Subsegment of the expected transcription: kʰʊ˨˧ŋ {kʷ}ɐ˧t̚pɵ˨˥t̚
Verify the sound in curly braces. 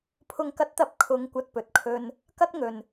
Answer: correct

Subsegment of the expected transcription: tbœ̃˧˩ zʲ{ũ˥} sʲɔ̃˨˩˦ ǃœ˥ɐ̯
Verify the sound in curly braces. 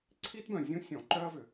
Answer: correct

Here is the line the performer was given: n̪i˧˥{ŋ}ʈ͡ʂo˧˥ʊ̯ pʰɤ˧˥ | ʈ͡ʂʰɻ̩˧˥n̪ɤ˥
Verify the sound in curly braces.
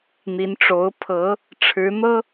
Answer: incorrect: n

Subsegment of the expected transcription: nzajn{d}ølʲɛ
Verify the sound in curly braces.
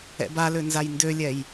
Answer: correct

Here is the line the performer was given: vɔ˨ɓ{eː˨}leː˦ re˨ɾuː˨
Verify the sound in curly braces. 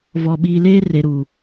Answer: incorrect: iː˨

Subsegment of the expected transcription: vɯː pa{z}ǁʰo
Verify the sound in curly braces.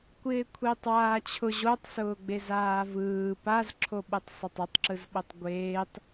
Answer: correct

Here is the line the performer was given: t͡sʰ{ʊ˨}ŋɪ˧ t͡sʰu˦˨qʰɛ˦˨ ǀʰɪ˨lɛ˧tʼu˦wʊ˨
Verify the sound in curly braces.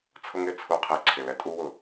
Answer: incorrect: ʊ˦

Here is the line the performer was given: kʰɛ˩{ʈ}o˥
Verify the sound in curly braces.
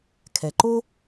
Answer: incorrect: ǃ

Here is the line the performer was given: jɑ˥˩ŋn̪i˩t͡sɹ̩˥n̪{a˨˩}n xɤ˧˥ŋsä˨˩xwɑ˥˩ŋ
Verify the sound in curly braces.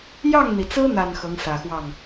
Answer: correct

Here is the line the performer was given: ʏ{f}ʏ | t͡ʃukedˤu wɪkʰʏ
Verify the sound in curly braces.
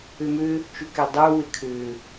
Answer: incorrect: m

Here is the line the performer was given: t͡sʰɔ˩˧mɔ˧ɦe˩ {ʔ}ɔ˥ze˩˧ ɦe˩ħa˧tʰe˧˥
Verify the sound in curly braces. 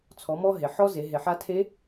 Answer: incorrect: ħ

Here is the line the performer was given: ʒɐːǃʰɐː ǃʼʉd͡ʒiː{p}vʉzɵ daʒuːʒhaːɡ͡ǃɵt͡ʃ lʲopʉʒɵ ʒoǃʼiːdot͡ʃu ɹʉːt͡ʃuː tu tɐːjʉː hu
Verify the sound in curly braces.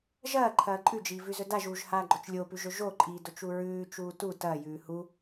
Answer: incorrect: none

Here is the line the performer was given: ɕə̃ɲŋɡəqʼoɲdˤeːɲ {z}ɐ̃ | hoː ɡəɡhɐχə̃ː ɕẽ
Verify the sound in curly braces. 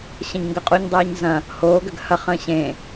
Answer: correct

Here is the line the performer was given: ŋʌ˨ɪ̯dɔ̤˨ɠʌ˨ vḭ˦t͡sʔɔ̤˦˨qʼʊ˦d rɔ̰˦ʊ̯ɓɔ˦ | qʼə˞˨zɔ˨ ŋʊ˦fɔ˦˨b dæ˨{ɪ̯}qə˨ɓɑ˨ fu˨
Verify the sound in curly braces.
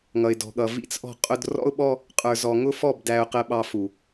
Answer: incorrect: ʊ̯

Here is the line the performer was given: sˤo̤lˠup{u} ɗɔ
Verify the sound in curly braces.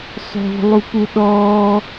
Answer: correct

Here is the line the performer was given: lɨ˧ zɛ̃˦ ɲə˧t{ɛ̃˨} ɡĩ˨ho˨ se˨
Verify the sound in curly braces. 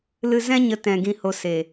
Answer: correct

